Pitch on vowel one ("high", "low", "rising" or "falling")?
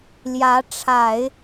rising